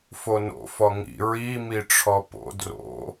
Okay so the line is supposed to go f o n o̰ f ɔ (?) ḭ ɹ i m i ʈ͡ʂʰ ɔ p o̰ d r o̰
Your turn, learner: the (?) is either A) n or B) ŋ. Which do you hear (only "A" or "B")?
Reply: B